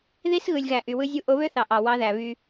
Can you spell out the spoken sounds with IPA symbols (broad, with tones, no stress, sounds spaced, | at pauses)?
ð i˦ s ɣ ɯ˨ lʲ ɣ æ˨ ʔ y˨ w ɯ˦ zʲ u˦ ʔ o˨˦ β ø˦ θ ɑ˨ ʔ ɑ˨ w ɑ˦ ð æ˨ β y˦